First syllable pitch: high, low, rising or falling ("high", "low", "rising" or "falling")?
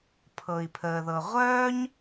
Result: low